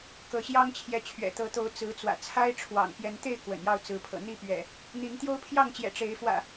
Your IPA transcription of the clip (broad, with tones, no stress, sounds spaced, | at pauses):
k ɤ˨˦ ɕ j ɑ˦ ŋ t͡ɕʰ j ɛ˨˦ t͡ɕʰ ɥ ɛ̰˨˩ t̪ ɤ˨˦ t̪ o˨˦ ʊ̯ t͡s ɹ̩˨˦ t͡s w ä̰˨˩ t͡sʰ a˦ ɪ̯ ʈ͡ʂʰ w ɑ̰˨˩ ŋ p j ɛ˨˦ n t̪ e˥˨ ɪ̯ k w ə̰˨˩ n j ɑ˥˨ ʊ̯ t͡s ɹ̩˨˦ pʰ ɤ̰˨˩ n̪ i˥˨ p ɥ ɛ̰˨˩ | n̪ i˨˦ ŋ t̪ j o˦ ʊ̯ pʰ j ɑ˥˨ ŋ t͡ɕ j ɛ̰˨˩ ʈ͡ʂ e˨˦ ɪ̯ f w ä̰˨˩